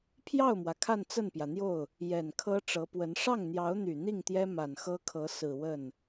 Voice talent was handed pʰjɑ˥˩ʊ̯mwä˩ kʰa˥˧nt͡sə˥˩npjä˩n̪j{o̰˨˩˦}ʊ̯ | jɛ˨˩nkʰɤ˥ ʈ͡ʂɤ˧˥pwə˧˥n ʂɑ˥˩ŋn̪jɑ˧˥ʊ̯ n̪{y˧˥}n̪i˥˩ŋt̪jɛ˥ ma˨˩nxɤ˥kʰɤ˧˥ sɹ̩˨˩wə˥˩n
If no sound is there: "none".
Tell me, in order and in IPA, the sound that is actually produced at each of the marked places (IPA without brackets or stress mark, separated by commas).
o˥˩, y˨˩